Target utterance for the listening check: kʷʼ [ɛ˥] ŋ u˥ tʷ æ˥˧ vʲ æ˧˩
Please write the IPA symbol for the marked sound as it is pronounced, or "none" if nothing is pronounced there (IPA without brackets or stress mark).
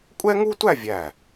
ɛ˥